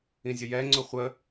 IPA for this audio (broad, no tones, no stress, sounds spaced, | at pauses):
ĩ zʲ ə j ɛ ŋ͡ǀ ʊ χʷ ə